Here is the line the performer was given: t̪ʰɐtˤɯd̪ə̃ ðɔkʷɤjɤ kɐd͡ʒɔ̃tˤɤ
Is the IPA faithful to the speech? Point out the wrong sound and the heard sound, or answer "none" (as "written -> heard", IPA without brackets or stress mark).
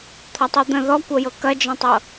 none